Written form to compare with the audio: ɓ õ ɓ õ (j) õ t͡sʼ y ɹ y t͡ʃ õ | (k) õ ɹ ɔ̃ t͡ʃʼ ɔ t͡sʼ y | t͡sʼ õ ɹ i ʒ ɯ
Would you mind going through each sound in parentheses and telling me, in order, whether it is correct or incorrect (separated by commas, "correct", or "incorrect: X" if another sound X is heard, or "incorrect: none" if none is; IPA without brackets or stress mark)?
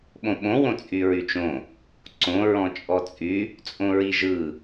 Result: incorrect: w, incorrect: ǀ